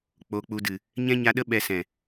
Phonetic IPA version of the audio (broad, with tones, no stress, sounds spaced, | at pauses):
k͡p o˧ k͡p u˧ d ɨ˨ | ɲ ɛ̃˦ ɲ a˧ ɗ ə˦ ɓ ɛ˧ s ɛ̃˨